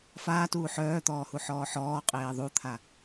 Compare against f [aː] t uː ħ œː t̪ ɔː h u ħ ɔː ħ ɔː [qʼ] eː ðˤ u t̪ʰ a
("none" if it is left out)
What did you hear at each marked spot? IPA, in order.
aː, qʼ

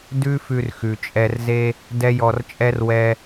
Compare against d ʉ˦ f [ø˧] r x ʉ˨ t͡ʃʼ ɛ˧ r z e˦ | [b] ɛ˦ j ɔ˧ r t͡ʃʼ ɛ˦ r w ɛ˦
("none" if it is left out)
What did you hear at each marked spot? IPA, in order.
ʉ˧, d

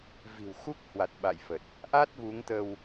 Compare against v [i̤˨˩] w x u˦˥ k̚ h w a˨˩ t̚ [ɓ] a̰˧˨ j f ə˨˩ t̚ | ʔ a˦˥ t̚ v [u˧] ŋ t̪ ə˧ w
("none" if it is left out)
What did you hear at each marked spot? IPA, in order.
i̤˨˩, ɓ, u˨˦

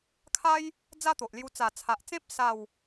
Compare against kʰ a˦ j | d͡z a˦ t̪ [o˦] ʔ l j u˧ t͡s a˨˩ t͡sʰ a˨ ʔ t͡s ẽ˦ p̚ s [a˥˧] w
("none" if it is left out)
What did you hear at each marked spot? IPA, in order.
o˨, a˥˧

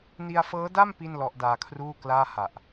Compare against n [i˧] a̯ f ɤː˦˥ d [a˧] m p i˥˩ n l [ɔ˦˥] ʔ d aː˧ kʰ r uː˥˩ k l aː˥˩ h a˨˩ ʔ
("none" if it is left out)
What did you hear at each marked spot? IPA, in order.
i˧, a˥˩, ɔ˦˥

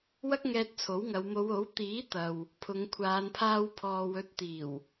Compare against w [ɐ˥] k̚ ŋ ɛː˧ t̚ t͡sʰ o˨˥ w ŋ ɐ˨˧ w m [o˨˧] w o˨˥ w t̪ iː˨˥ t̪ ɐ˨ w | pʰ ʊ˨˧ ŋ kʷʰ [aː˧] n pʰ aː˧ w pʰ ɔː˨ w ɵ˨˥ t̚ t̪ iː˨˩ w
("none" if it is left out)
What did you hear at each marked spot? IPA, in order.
ɐ˥, o˨˧, aː˨˧

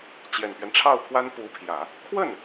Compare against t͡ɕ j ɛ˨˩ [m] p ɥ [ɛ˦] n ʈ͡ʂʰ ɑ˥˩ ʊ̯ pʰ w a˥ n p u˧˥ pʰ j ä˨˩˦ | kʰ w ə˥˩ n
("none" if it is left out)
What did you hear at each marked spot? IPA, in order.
n, ɛ˦

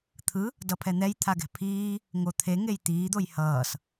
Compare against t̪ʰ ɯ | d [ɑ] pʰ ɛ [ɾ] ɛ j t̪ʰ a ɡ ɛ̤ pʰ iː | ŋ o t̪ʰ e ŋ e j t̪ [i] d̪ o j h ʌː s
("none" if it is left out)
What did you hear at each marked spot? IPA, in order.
ʌ, n̪, iː

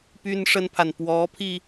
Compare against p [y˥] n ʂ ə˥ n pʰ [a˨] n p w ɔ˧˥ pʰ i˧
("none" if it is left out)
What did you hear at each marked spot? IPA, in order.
y˥, a˨

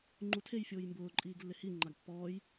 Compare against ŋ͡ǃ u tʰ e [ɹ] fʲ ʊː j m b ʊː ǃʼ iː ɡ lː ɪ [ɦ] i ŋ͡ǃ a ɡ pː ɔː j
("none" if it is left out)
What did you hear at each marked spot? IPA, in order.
j, h

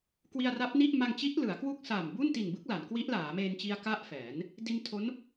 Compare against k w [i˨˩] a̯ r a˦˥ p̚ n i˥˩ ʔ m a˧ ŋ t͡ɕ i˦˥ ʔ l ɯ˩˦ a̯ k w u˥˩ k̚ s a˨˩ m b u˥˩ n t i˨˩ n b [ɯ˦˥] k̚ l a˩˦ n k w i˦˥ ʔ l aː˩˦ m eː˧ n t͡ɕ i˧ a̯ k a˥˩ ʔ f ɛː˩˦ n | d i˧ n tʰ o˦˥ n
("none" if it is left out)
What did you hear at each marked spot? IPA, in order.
i˧, ɯ˦˥

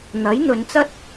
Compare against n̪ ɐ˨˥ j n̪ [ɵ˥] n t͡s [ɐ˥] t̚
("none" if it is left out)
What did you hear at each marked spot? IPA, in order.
ɵ˨˧, ɐ˥

